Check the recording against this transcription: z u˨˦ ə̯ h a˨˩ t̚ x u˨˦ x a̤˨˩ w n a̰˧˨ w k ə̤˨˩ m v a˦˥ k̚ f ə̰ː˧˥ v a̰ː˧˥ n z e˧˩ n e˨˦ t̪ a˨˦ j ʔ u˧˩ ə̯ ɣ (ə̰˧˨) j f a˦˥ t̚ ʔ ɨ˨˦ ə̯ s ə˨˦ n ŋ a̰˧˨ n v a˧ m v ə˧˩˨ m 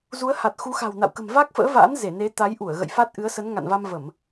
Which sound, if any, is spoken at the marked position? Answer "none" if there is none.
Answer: ə̰˧˨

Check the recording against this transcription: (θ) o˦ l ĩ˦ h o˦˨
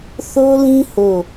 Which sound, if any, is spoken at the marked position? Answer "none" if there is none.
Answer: θ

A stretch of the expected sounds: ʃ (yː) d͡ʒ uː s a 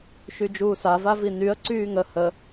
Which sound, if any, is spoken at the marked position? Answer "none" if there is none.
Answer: y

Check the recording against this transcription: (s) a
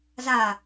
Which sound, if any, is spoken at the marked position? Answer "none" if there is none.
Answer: z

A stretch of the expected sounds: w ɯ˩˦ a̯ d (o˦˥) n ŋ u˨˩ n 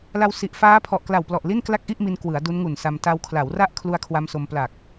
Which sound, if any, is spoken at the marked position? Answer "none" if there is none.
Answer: u˦˥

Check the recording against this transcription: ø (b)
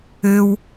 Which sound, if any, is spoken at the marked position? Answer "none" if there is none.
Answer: w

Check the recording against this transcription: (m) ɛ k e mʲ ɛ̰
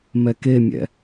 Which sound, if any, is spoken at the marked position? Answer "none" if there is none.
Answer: m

